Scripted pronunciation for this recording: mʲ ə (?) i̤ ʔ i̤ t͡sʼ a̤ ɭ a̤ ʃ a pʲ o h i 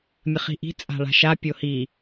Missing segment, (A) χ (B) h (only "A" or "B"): A